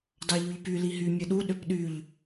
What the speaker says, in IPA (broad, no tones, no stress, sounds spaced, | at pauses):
d ɑ ʎ y ʎ p y l i ɦ y mʲ ɯ ɗ u ɗ ø p ɗ y ʎ